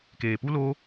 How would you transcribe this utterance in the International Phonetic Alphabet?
keː˨pu˦lo˦

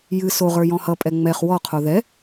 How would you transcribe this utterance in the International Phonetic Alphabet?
jɨ soʁə˞ jɔ̃hʌpʼɛ ŋ͡mɛχ wɔqʰo ðɛ

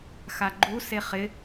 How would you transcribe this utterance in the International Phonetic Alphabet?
xaɡ͡ǃu seχɪ

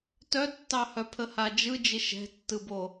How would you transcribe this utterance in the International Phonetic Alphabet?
tœtːɑhœ pʰəhad͡ʒɯ d͡ʒɪʃɛ̤tːɯbo

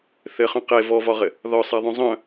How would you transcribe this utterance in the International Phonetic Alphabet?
θɘχœ̃ qe vɔvɒʁɘ | ðɒsˤaðˤœ̃ zˤœ̃

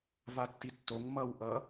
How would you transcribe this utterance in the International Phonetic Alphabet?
vatːitːoŋ mʌw ʔʌ

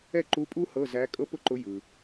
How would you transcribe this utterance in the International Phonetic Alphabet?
ɛ˥˩ǃu˧˥ pʼu˥hɤ˧˥˧ zæ˧˥ kʼɤ˥pʊ˥ǃʊ˧˥ jɯ˨

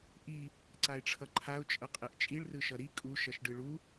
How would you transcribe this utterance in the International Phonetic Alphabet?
ʔi | ǀaɪ̯ʈ͡ʂʰʌǃʰaʊ̯ t͡ʃʼʌqʼeʔt͡ʃʼiɭ rɯʃʌɾi kʼu ʃʌʃɖɯɭu

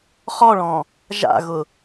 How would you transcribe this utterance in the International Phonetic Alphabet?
χɔɭɔ̃ | ʒa̰ɣʊ

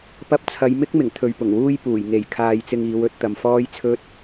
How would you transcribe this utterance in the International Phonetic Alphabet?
pɐ˧p̚t͡sʰɐ˨˧jmɪ˥k̚ mɪ˨˩ŋ t̪ʰɵ˨ɥpʊ˨˩ŋwuː˥jpuː˨˩j ŋe˨˩jkʰaː˨j t͡sɪ˧ŋiː˨˧wɵ˨˥t̚ t̪ɐ˨˧mfɔː˥jt͡sʰɵ˥t̚

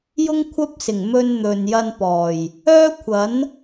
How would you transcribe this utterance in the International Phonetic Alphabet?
jʊ˥ŋkʷʰɐ˥p̚sɪ˨˩ŋ mɵ˧nn̪ɵ˨njɐ˧n pɔː˨˩j | œː˥kʷʰɐ˨˥n

